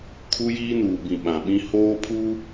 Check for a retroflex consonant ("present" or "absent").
absent